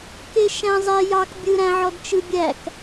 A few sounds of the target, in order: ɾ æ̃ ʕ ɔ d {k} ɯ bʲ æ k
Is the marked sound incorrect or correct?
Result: incorrect: t͡ʃ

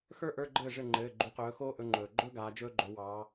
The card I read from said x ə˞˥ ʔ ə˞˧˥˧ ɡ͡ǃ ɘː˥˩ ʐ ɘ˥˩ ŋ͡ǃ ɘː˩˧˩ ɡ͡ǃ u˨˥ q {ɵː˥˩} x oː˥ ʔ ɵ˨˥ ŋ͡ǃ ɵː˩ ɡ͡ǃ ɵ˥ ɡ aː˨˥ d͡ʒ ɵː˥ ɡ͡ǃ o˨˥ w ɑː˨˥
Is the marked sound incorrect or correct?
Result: incorrect: ɵː˨˥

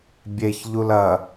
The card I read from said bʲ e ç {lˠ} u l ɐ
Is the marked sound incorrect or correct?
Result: incorrect: ʎ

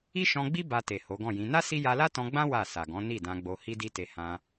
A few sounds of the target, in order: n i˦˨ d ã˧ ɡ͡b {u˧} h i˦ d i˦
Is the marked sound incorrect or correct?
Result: incorrect: o˧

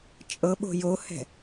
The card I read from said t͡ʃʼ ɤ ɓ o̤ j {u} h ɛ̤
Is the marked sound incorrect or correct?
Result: incorrect: o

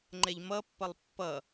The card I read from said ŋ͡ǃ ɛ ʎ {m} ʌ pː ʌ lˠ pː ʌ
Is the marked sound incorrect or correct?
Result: correct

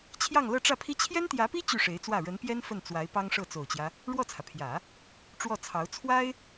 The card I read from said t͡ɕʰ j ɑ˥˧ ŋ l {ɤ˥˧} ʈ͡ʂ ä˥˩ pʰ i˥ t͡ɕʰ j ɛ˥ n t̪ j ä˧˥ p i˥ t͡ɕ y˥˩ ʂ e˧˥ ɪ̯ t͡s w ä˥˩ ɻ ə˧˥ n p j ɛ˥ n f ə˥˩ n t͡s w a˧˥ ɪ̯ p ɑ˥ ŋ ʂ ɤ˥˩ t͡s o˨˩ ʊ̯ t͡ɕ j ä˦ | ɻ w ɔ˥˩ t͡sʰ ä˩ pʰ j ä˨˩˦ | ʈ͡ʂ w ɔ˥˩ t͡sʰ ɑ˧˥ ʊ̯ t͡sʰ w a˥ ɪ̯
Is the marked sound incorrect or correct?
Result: correct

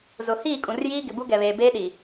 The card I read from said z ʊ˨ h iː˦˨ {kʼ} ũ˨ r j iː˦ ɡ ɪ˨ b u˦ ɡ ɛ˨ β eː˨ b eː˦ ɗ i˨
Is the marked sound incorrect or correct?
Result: correct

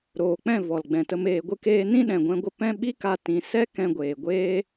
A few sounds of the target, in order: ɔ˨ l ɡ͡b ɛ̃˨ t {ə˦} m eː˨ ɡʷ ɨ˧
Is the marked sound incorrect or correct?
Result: incorrect: ə˧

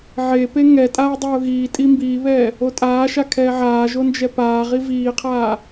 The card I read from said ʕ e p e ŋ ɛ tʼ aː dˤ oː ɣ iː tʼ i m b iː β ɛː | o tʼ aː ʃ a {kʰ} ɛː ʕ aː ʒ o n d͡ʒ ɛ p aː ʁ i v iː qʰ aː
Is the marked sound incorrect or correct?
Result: correct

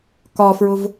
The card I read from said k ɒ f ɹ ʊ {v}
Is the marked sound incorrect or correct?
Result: correct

